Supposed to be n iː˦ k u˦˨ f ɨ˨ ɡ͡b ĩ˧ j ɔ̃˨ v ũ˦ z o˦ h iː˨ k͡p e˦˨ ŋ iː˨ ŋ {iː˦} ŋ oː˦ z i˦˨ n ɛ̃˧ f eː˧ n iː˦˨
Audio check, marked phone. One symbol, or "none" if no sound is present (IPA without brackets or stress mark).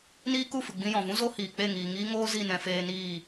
iː˦